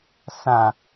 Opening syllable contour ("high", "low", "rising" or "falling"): low